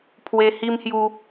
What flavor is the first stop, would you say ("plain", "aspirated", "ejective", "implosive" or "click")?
aspirated